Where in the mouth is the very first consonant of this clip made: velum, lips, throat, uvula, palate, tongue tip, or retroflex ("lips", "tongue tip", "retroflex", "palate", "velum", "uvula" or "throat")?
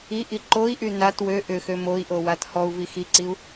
throat